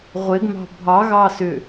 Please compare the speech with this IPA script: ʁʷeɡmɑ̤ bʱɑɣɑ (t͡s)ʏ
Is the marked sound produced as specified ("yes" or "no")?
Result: no